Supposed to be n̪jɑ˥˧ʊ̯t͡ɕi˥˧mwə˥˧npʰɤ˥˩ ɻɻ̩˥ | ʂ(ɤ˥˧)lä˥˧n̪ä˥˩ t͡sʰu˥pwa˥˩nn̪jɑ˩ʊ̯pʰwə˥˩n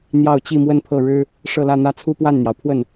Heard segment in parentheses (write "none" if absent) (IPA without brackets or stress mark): ɤ˥˧